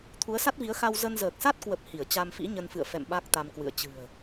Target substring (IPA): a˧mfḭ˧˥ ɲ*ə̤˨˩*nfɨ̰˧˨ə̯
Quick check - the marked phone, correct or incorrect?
incorrect